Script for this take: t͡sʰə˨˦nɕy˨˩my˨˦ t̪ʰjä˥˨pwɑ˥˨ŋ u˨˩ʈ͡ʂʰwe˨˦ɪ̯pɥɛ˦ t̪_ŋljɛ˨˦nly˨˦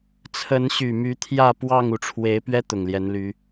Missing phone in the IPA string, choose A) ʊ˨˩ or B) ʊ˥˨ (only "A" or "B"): A